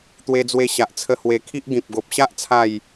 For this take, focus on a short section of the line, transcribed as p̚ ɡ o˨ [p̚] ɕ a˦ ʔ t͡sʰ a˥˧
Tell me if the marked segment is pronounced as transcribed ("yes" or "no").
yes